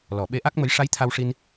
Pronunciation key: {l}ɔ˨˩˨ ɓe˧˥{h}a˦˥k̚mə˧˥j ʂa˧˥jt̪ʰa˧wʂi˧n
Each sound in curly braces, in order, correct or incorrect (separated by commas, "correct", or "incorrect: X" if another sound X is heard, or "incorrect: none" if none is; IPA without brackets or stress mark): correct, incorrect: ʔ